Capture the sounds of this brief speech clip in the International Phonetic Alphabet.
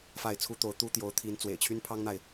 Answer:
fa˥˩ɪ̯ t͡sʰu˥t̪o˧˥ʊ̯t̪u˥t̪jo˧˥ʊ̯ t̪ʰi˧˥n t͡swḛ˨˩ɪ̯t͡ɕʰy˥npʰɑ˥ŋn̪a˨ɪ̯

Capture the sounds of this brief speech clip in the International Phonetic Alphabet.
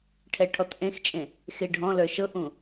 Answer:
ʈʰɛʈʰɔtʔẽxt͡ʃʼẽ | xeɖʱɔ̃lə˞ ʃɤʔũ

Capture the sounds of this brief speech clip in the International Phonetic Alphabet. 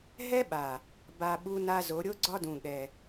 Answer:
ɦɛ˦ɓa˨ | ba˨ ɓu˦na˦zo˨˦ ɾʲo˦ɡ͡ǀɒ˦dũ˨ ɠɛ˨

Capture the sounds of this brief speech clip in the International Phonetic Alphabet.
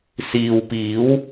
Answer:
siː˨wpiː˨˥w

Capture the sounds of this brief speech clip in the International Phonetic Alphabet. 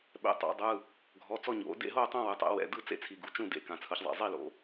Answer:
ɓɛ̰˩˧ tˤa̰˩˧ dˤɯ˩˧˩ | ɡʱɔ˩˧˩t͡sɔ˥˧ ɲo̰˩˧ dḛ˥˧ɦo˥˧tˤã˥˧ wɯ˩˧tˤɛ̰˩˧wɛ̰˩˧˩dɯ˥˧ t͡sḛ˥˧t͡sʰi˩˧˩ɡu˩˧ t͡ʃũ˥˧dḛ˩˧˩kã˩˧ t͡sʰɯ˩˧çzˤɛ̰˩˧˩zˤi˥˧lo̰˩˧

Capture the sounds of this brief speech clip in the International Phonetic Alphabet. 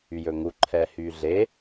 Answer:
yjɵŋu ǃʰɛhyɮe

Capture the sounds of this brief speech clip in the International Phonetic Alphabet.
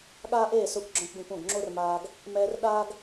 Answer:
ɠaː˦ʔeː˦˨sʊː˧kʷ ɡ͡ǁɔ̃˦kʷɡõ˦kʷõ˦˨ɡ ŋ͡ǁo˦rmaː˧ɡ | mɛː˧rɗaː˦ɡ

